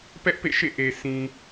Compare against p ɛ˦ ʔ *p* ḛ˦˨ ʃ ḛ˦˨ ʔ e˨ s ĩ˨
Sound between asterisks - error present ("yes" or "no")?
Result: no